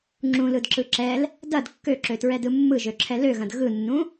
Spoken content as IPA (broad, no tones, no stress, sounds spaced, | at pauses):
ŋ͡ǁ ũ l ɯ d ǁ ɯ ǁ ɛ l | d ɐ d kː ø ǁ ø t ɹ ɛ d ɯ mː ɯ ʒ ø ǁʰ ɛ l ø ɣ ɐ̃ d ɣ ɯ nː ũ